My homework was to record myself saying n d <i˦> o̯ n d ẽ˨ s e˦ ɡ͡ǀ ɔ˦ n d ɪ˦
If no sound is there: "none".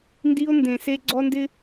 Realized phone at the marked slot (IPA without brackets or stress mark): i˦